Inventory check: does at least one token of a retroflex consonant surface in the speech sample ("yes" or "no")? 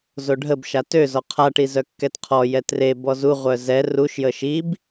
yes